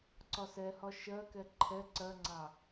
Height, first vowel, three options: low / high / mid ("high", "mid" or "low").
low